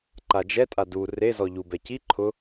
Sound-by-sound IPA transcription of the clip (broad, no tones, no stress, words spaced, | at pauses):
ǃad͡ʒɛtʼa du rezɔ ʎubɛ ci ǃʰʊ